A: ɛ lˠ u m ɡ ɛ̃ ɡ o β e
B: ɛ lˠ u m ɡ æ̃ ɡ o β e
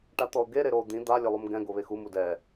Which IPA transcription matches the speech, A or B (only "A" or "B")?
A